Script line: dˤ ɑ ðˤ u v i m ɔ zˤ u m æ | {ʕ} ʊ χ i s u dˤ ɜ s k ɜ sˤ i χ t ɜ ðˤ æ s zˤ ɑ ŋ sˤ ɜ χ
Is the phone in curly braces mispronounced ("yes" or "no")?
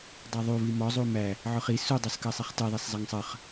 no